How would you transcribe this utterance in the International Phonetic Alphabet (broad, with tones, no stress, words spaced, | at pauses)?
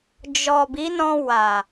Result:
d͡ʒɔ˨ bi˨˦nɔ̃˧ wa˨